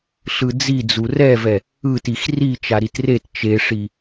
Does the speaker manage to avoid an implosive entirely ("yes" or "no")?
yes